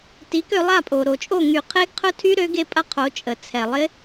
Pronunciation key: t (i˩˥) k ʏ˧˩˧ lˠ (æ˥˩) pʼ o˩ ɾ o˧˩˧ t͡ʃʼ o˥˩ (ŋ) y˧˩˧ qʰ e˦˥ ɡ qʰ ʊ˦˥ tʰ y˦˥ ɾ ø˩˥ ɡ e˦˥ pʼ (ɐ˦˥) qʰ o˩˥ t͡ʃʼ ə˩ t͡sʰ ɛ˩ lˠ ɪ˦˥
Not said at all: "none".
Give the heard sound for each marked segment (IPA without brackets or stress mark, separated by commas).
i˩˥, a˥˩, ŋ, ɐ˦˥